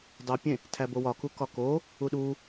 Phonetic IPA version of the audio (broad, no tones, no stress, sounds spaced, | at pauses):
dˤ o pʲ ẽ | tʰ æ b o w ɒ k u k ɒ k o | u ɗ u